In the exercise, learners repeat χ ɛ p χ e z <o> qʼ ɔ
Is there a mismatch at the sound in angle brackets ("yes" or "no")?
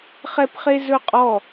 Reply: yes